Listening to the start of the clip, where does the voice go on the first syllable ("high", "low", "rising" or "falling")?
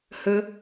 high